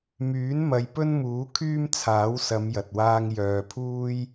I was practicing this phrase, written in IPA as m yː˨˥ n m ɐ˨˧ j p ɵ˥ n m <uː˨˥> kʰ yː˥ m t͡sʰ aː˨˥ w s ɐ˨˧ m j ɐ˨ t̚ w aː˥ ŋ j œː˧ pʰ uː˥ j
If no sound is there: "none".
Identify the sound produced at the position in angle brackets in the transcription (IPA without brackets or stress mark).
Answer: uː˨˥